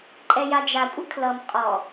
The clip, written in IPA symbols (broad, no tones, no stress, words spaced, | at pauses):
ǃʼɛjad͡ʒakʷʼə kʰlʌm qʼɔ